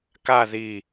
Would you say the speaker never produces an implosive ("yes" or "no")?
yes